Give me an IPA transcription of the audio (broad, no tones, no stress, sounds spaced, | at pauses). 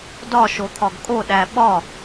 d ɒ ʃ o t̪ʰ ɒ ɡ kʼ o ɗ æ ɓ ɒ